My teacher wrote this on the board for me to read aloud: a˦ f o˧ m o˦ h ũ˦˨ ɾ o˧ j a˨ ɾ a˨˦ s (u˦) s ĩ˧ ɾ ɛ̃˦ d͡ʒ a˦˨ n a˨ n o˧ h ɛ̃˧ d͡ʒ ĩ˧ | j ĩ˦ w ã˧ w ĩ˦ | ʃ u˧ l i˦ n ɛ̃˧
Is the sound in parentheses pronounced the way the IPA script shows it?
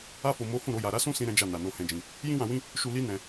no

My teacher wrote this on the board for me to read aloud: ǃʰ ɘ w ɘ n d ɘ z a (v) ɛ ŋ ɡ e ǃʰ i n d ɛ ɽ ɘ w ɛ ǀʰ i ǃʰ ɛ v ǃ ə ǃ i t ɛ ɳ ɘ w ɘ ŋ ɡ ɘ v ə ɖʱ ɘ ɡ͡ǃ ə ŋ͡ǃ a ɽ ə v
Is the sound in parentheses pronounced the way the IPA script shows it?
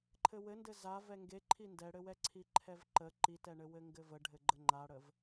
yes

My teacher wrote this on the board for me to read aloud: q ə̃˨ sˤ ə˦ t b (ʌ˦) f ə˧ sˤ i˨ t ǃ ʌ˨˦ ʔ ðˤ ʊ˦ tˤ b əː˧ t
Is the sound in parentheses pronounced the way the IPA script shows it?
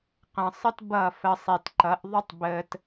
no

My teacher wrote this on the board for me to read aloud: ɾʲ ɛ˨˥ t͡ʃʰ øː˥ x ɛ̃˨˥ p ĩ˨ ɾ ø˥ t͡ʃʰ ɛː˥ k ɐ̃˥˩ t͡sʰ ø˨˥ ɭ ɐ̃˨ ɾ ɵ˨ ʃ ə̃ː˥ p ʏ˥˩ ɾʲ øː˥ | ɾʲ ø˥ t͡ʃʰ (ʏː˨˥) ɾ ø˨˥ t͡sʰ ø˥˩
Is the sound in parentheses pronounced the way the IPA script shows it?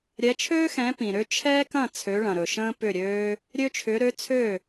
yes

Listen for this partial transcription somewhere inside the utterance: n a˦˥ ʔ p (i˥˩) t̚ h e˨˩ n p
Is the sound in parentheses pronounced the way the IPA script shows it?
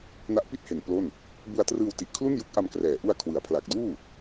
yes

